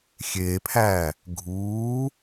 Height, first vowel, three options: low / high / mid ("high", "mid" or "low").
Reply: mid